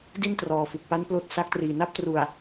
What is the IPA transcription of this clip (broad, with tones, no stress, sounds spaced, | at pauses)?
d i˥˩ n t r ɔː˨˩ f u˨˩ k̚ p a˦˥ n p l oː˦˥ t̚ s a˦˥ k̚ t r iː˨˩ n a˥˩ p̚ t r u˨˩ a̯